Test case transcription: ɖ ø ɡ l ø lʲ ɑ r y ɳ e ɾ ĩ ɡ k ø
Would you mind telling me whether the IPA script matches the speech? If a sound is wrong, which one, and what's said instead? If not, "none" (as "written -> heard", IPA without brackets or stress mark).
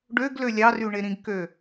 none